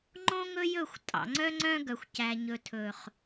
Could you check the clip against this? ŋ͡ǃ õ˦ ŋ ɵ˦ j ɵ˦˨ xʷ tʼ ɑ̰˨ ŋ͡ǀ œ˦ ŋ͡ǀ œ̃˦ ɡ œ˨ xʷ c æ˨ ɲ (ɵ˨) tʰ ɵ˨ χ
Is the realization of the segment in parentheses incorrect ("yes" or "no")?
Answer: no